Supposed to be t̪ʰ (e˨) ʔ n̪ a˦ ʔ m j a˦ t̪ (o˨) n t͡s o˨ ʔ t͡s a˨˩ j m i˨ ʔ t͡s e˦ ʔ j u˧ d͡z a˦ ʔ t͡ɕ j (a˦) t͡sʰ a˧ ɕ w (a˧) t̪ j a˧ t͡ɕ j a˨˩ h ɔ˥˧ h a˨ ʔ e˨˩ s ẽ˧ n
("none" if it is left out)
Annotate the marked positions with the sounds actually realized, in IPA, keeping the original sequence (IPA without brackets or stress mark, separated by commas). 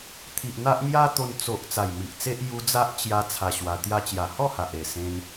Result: i˨, o˧, a˧, a˧